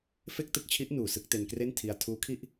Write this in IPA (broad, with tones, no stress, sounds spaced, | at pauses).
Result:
f e˥˩ k̚ t ɯ˥˩ k̚ t͡ɕʰ i˦˥ ʔ n uː˨˩ s ɯ˥˩ k̚ t e˧ n k r e˥˩ n tʰ i˧ a̯ tʰ uː˦˥ kʰ i˥˩ ʔ